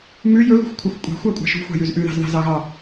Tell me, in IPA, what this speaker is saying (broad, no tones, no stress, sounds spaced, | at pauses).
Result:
m ʉ j ɵ ɣ ṳ xʷ kʷʰ ɑ xʷ kʷʼ ɛ̤ xʷ æ kʷʼ ɑ̤ ʃ ṳ xʷ ɑ̤ j ʉ z ʔ ʉ ð ɑ̤ z ð ɑ̤ z ɑ ɣ ɑ